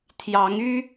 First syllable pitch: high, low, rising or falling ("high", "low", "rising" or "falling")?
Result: rising